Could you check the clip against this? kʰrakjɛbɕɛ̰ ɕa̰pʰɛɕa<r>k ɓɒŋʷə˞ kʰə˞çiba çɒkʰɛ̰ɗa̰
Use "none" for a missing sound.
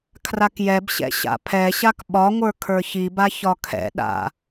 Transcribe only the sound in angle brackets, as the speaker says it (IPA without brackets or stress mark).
none